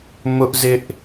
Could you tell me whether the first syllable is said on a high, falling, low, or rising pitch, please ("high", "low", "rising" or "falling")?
high